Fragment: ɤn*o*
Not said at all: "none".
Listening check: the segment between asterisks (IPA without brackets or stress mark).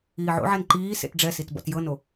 o